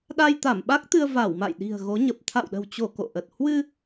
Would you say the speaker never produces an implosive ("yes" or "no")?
no